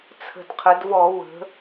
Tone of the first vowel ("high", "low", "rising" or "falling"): low